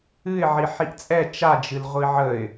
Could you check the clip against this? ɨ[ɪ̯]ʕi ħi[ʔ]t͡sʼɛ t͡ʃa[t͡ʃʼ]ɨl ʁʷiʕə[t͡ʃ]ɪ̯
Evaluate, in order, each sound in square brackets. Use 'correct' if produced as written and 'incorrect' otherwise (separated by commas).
correct, correct, incorrect, incorrect